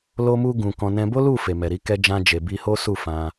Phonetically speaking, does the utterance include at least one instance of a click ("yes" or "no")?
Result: no